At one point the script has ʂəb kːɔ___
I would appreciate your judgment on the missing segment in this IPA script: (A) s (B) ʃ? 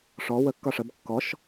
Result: B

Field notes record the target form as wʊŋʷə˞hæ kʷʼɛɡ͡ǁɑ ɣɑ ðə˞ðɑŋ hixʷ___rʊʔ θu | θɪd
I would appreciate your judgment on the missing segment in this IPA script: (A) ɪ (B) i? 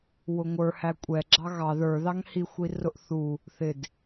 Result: B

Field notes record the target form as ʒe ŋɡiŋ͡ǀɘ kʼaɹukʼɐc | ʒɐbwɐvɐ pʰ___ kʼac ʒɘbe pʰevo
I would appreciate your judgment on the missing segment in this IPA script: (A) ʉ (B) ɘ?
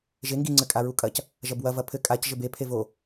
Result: B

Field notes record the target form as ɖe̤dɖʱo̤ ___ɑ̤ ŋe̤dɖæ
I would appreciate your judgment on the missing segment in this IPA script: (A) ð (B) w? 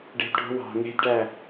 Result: B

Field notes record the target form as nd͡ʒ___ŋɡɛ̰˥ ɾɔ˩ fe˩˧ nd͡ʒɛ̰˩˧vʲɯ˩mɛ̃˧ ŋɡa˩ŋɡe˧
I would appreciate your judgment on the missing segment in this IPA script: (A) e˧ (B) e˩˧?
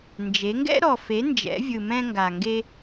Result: B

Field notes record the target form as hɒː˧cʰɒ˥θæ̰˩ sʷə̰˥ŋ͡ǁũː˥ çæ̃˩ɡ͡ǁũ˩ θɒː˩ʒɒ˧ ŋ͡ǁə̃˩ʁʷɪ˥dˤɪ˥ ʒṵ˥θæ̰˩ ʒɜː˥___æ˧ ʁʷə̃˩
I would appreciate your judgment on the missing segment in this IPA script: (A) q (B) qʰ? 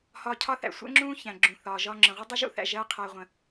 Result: B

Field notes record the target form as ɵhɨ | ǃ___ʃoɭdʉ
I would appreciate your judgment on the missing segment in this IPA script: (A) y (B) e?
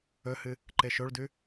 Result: B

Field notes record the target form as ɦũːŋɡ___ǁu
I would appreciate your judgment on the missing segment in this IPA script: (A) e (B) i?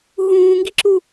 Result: B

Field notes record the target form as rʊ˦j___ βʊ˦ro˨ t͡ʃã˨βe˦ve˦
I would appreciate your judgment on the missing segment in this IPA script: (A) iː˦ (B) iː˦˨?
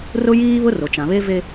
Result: A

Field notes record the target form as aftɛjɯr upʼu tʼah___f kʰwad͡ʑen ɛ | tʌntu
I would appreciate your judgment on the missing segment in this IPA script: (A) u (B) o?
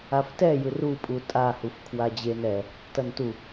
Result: A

